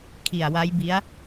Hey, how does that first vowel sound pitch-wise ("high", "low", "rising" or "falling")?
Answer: low